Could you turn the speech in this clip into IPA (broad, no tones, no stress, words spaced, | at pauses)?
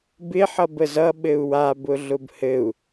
bɪ ħʌbəzʌ ɓɘu̯wa bʊɮʊbhɘu̯